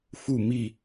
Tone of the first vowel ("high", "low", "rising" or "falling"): falling